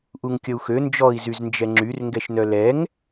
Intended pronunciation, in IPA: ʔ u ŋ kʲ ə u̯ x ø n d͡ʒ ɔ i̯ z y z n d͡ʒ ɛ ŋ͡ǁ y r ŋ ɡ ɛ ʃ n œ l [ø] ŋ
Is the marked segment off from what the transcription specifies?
yes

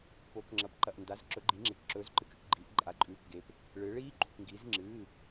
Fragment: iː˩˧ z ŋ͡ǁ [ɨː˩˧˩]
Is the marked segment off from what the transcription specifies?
no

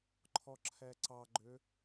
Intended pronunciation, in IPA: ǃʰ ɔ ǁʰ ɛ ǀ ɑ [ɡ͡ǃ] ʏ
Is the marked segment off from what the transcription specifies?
no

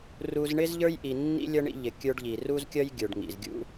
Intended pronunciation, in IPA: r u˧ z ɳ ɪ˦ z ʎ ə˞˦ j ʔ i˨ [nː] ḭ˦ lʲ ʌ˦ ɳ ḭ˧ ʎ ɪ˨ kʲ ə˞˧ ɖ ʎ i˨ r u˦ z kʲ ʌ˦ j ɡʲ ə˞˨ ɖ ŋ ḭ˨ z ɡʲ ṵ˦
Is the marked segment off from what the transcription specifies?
no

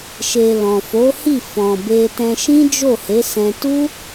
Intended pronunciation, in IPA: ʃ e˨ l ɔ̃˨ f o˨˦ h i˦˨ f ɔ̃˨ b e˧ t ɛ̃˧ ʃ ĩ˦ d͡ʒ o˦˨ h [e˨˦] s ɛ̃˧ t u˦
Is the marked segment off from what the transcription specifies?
no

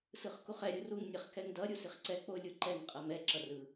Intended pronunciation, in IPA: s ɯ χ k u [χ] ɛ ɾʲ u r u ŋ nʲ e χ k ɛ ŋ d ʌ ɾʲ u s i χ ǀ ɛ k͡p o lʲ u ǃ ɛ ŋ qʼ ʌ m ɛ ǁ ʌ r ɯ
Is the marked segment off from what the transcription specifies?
no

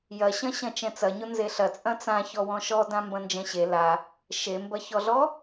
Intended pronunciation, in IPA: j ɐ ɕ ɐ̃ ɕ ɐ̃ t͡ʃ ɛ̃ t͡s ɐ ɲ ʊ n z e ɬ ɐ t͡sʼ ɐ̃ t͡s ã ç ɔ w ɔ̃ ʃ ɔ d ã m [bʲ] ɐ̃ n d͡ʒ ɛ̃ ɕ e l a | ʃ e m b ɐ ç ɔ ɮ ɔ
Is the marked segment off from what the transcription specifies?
yes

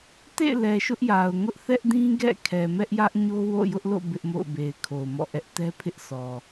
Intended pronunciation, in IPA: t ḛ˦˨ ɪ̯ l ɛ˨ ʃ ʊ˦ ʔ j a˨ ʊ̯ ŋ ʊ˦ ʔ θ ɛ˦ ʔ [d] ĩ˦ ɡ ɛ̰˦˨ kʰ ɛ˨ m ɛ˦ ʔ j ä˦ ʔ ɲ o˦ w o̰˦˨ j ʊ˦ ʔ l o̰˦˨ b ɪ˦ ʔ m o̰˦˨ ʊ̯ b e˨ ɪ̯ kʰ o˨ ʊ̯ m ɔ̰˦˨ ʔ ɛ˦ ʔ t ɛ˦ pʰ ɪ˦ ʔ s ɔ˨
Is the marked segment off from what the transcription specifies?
no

